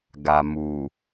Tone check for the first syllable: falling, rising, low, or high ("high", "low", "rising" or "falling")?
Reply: low